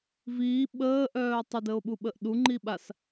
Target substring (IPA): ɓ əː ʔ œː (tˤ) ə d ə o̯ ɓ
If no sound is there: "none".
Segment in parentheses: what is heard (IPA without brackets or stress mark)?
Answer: tˤ